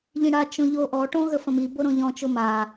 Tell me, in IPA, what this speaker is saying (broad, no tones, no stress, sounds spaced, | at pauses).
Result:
ʎ ĩ ɽ a t͡ʃ õ ʎ o ʔ ɔ ʈ õ ɣ ə f ə̃ m i b o ɾ õ ʎ ɔ̃ t͡ʃ o m a